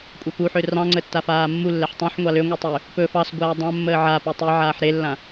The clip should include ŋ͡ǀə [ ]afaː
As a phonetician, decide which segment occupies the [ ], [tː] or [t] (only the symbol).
tː